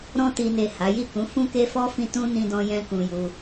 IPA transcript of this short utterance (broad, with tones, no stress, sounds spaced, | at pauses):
ɾ ɔ̃˧ t i˨ n e˨ h a˨˦ j i˦˨ k ũ˨˦ f ũ˦ k e˦ f ɔ˦ f ĩ˦˨ t ũ˧ n ĩ˧ d ɔ̃˧ j ɛ̃˧ k ũ˧ j u˧